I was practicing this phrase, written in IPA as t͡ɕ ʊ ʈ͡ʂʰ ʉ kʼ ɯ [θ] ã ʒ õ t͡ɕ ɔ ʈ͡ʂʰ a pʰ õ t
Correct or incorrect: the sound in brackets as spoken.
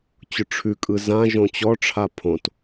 incorrect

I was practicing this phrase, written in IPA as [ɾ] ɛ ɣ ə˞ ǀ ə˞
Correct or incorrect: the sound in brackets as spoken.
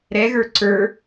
correct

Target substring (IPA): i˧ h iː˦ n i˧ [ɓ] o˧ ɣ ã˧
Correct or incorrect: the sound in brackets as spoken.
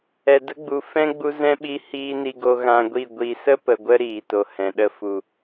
incorrect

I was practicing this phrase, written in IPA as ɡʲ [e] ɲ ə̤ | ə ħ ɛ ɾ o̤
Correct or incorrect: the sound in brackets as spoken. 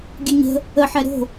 incorrect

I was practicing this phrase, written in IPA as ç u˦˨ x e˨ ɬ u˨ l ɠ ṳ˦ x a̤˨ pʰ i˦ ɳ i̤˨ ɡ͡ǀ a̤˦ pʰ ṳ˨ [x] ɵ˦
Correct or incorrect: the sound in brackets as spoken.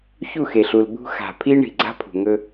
incorrect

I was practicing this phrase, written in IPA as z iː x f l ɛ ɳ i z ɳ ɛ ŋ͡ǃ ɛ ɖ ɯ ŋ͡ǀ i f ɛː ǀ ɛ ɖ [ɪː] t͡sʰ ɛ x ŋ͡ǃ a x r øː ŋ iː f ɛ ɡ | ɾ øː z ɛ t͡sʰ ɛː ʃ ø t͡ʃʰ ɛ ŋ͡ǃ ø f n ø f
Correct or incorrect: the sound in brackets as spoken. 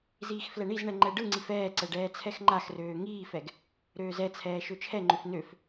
incorrect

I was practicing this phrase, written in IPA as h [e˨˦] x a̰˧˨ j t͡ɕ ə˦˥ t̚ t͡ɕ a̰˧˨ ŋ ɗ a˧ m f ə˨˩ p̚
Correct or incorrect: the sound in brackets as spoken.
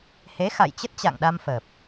correct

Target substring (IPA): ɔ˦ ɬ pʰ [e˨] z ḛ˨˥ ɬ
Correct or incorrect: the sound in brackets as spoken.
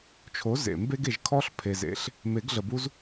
correct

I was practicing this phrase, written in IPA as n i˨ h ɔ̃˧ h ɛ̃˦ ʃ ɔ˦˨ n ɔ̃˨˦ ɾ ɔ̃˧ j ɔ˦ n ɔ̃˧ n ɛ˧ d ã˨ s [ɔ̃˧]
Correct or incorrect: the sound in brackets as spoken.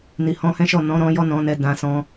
correct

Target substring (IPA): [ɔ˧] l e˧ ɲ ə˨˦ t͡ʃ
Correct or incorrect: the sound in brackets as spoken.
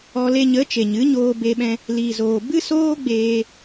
correct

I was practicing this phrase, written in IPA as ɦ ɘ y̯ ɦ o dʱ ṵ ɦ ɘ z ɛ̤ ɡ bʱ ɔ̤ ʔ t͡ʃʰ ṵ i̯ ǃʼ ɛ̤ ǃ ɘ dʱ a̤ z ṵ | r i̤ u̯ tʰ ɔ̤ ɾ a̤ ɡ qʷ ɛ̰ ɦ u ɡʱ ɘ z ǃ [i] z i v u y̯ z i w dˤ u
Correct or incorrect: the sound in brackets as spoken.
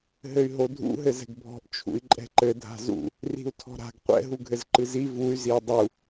incorrect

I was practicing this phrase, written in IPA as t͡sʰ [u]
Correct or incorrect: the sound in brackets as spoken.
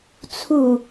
correct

